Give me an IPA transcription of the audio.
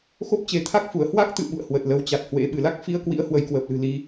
x o˦˥ p̚ t͡ɕ e˨˦ t̪ʰ a˦˥ k̚ f u˧˩ ə̯ h w a˦˥ k̚ t̪ ɨ̰˧˨ ɓ ṵ˧˨ ə̯ h w ə˨˩ t̚ l ə˨˦ w t͡ɕ a˨˩ t̚ h w ḛ˧˥ ɓ ɨ˧˩ l a˦˥ k̚ f i˧ ə̯ k w ḭ˧˥ ə̯ h w ə˧ j k w əː˨˩ p̚ l ɨ̤˨˩ l i˧

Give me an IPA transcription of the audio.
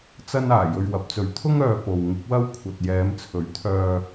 t͡s ɐ˥ n aː˨˩ j ɵ˧ ɥ w ɐ˨˥ p̚ t͡s ɵ˨ ɥ t̪ʰ ʊ˥ ŋ œː˨ p o˨ w ŋ ɪ˨˥ k̚ w ɐ˥ w kʷʰ ɐ˨ t̚ j ɛː˨˧ m t͡sʰ ɵ˨˥ ɥ t̪ʰ œː˧

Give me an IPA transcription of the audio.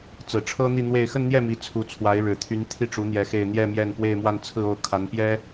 t͡s ɹ̩˨˩ ʈ͡ʂʰ ɤ˥ n̪ i˥˧ n̪ w e˥˧ ɪ̯ x ə˥˧ n n̪ j ɛ˥˩ m i˧˥ t͡sʰ u˧˥ t͡sʰ w a˧˥ ɪ̯ ɻ ɻ̩˨˩ t̪ʰ y˧˥ n t̪ʰ i˥˩ ʈ͡ʂ u˧˥ n̪ j ɛ˧˥ x e˥˧ ɪ̯ n̪ j ɛ˥˧ m j ɛ˥˧ n p w e˥˧ ɪ̯ m w a˥˧ n t͡sʰ ɹ̩˥˧ o˥˩ ʊ̯ kʰ a˧˥ n p j ɛ˥

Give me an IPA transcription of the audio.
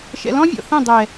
ʃ ɛ̰˨ l ɔ̃˦ vʲ ɔ̰˨ θ ẽ˦˨ dˤ ɛ˨

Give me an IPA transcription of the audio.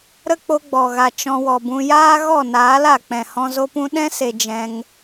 ɾ ə˦ k͡p o˧ ɡ͡b ɔ˨ ɣ a˨ t͡ʃ ɔ̃˧ w ɔ˨ b ũ˧ j aː˦ ɣ ɔ˦˨ n aː˨˦ l a˨ k͡p ɛ̃˨ h ɔ̃˧ z o˦ p ũ˦ ɗ ɛ̃˦ s e˨ d͡ʒ ɛ̃˧ ŋ

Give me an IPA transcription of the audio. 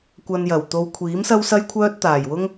kʷ ɐ˧ n j ɐ˨˩ w t̪ o˧ w kʷʰ iː˨˥ m s ɐ˥ w s ɐ˥ j kʷʰ œː˥ t̚ t̪ aː˨˩ j w ʊ˥ ŋ

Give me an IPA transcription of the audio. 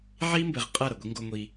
ʕ iː˦ m b ɘ˨ ʁ qʼ ɐ˦˨ ɾ ɐ˨ ɡʷ i˦ ŋ ɡ o˦ ŋʷ i˦

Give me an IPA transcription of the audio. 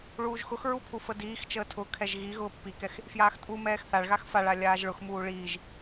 ɭ uː ʒ x ʊ x ɹ u pʰ u f ə d iː x t͡ʃ əː tʰ ʊ kʰ ɛ ʒ ɣ i ɣ ʊː pː i k ɛ x | f j aː x tʼ u m ɛː x θ a ɭ ɣ a x f a ɭ a lʲ aː ʒ ɭ ʊ x m uː ɭ iː ʒ

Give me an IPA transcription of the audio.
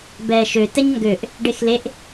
b ɛː ʃ ø t ɛ ɲ ŋ ɡ ø ʔ | ɖ e x l e ʔ

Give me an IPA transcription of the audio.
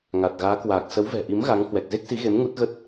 ŋ a˨˩ t̚ ɣ aː˨˦ k w aː˨˩ k̚ s ə˨˦ w v ɛ̤˨˩ ʔ i˨˦ m ɣ a˨˦ ŋ h w ɛ˨˩ k̚ z e˦˥ k̚ s i˨˦ ɣ e˨˦ m ŋ u˦˥ t̚ ɣ ə˦˥ t̚

